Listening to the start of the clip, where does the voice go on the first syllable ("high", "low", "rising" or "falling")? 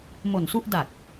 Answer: low